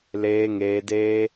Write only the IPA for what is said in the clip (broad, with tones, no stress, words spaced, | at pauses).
leː˧ŋeː˧deː˦